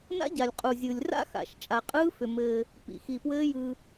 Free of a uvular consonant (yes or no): no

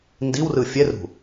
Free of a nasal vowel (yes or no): yes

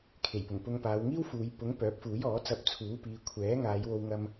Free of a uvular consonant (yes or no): yes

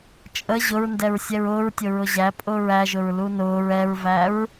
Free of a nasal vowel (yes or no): yes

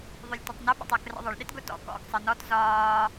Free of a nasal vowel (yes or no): yes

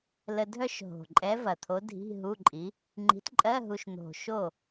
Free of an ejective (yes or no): no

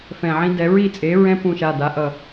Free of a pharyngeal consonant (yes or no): no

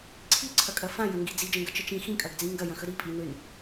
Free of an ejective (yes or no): no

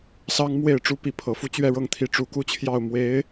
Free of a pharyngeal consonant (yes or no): yes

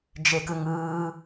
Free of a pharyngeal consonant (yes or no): yes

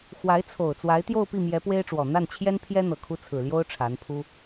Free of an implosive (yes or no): yes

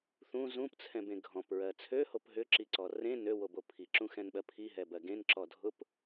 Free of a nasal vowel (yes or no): no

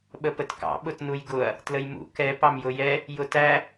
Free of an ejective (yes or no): yes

